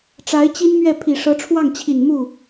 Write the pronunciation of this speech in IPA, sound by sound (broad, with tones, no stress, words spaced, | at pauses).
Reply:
ʈ͡ʂa˧˥ɪ̯t͡ɕi˥nmɥɛ˥˩ pʰi˨˩ʂɤ˧˥ʈ͡ʂʰwɑ˥˩ŋt͡ɕʰi˨˩n mu˥˩